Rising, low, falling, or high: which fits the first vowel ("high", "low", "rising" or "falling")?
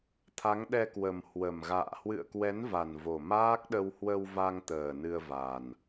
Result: rising